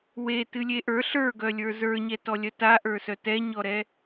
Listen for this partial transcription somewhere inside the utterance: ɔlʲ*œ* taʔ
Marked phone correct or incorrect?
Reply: correct